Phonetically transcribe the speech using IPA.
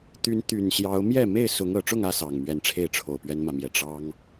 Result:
t̪ y˨˦ n t̪ y˨˩ n ɕ j ɑ˨˦ ʊ̯ m j ɛ˥˨ m e˥˨ ɪ̯ s ʊ˨˦ ŋ ɤ˨˩ ʈ͡ʂ ʊ˥˨ ŋ ä˥˨ s ɑ˨˩ ŋ m ɥ ɛ˨˦ n ʈ͡ʂʰ e˥˨ ɪ̯ ʈ͡ʂʰ o˨˩ ʊ̯ p ɥ ɛ˦ n m ä˨ m j ɛ˨˩ ʈ͡ʂ ɑ˦ ŋ

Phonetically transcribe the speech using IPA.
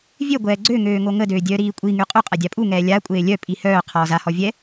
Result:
vʲ ø ɡʷ ɛː ɡ͡ǀ ø ŋ øː ŋ o ŋ ə d øː dʲ œː ɾ iː kʷʼ i ŋ y qʼ u qʼ a dʲ a pʼ u ŋ ɛː lʲ a kʷʼ eː lʲ œ pʼ i h œː qʰ ɔː z a h ɔ vʲ ɛ

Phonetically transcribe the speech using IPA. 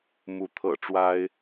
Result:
m u˧˥ t̪ʰ ɤ̰˨˩ ʈ͡ʂ w a˥ ɪ̯

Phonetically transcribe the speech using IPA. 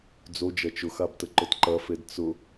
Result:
d͡z o d͡ʒ ɐ t͡ʃ ʊ x a b t ə ǃ ʊ t ǃ ɐ f e d t͡s ʊ

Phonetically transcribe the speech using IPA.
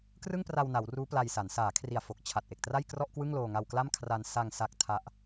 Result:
k r ɯ˥˩ ŋ p r a˧ w n a˩˦ w r uː˦˥ p l a˧ j s a˩˦ n s aː˩˦ kʰ r i˨˩ a̯ f o˨˩ k̚ t͡ɕʰ a˨˩ t̚ ʔ e˨˩ k̚ t r a˥˩ j k r ɔ˥˩ ʔ k w ɯ˥˩ ŋ l oː˧ ŋ a˧ w k l a˥˩ m kʰ r a˧ n s a˧ ŋ s a˦˥ k̚ tʰ a˦˥ ʔ

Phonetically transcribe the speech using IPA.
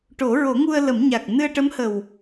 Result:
ʈ o˨˩˦ ɹ o˨˩˦ ŋ u˧ ə̯ l ə˨˩˦ m ɲ a˨˩ k̚ n ɨ˧ ə̯ ʈ ə˧˥ m h ə˨˩ w

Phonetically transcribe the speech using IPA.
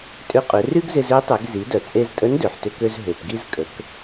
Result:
tʼ ʏ˧ qʼ ʏ˩˧ r y˥ ɡ z ɪ˧ z ø˧˥ tˤ ø˩˧ ɡ z i˩˧ d œ˩ t͡sʼ e˧ z tʼ ə˧˥ n d ø˩ ħ t ʏ˧ k ø˧ z ɦ ø˩ p ɡ i˧ z kʼ ə˩˧ k

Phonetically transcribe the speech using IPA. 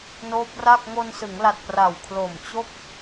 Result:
n oː˦˥ p̚ r a˥˩ k̚ ŋ o˧ n s ɯ˩˦ ŋ l a˨˩ t̚ p r a˨˩ w kʰ l o˨˩ m t͡ɕ o˥˩ k̚

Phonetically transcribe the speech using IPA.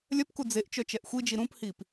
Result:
lʲ œ p k u d͡z e ʔ t͡ʃ œ t͡ʃ ɛ ʔ xʷ i d͡ʒ i ɾ ũ p h i p

